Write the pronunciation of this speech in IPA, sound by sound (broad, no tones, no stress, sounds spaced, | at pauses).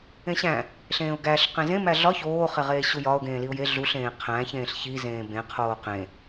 ẽ ɕ æ̃ | ɬ ẽː ʊ̯ ɡ æ ɬ q ẽ z ẽ m æ ɮ ɒ ç oː χ e ʁ eː ɕ u j ɒ ʊ̯ ɡ ẽː l i ʊ̯ j e ɮ u ɬ ẽː qʰ æ̃ ç ẽː ɬ ç i z ẽː b ẽ qʰ oː q ẽ